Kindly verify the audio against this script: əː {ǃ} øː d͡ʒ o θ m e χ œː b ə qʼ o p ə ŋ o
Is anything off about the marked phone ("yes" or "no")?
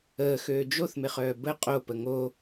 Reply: yes